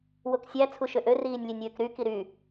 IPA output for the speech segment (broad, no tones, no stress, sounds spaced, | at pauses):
w o k sʲ æ t͡sʰ u ʃ ø ʔ ø r iː nʲ lʲ e nʲ w ø k ɾ y k i ɾ y